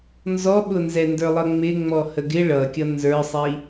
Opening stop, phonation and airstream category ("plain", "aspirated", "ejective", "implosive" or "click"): implosive